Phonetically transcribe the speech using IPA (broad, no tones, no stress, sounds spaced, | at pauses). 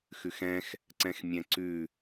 x ʉ x ɛ̃ x | ǀ ɛ̃ x mʲ ɛ̃ ǀ ʉ